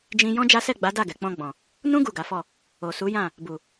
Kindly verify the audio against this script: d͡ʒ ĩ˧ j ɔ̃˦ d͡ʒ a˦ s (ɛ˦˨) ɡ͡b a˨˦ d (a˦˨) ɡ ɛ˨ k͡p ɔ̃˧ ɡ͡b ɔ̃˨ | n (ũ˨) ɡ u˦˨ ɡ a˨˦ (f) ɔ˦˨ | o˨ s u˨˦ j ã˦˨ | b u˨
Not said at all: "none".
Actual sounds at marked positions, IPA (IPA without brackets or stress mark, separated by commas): ɛ˦˨, a˦˨, ũ˦, f